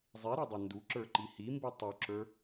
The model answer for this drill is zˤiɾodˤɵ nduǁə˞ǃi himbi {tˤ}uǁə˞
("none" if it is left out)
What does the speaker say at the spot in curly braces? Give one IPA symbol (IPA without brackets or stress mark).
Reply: tˤ